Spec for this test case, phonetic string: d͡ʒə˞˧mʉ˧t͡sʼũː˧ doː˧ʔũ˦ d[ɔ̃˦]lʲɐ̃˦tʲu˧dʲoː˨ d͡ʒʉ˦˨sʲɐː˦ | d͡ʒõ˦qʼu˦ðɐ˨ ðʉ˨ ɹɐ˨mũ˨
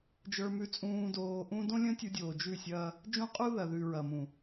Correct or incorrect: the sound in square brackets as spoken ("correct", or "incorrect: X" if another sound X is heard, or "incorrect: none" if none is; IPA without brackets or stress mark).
incorrect: õ˦